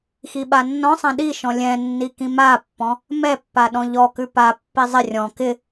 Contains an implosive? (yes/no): yes